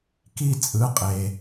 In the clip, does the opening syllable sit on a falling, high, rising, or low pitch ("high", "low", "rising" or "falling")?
falling